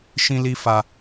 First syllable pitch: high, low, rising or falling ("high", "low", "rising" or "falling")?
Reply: high